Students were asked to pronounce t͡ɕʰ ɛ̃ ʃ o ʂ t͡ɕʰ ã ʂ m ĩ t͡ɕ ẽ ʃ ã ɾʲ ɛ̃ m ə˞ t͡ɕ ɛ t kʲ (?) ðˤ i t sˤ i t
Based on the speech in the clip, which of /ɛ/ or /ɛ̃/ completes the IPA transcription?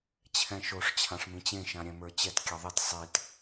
ɛ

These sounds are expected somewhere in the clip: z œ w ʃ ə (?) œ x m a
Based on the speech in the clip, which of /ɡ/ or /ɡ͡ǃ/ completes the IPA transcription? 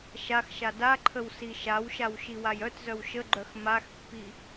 ɡ͡ǃ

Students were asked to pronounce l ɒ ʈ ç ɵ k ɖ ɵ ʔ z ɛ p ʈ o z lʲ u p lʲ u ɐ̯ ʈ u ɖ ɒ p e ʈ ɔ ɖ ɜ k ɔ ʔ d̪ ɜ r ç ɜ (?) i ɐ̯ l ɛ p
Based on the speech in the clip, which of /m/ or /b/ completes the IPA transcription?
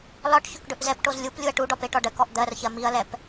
m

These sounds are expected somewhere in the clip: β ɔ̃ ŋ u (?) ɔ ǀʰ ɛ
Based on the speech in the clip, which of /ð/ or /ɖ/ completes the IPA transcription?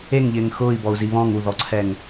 ð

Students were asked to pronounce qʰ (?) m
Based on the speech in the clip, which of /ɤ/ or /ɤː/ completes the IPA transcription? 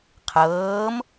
ɤː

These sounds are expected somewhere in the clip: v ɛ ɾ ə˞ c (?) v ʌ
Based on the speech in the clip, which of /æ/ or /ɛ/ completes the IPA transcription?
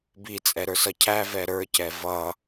ɛ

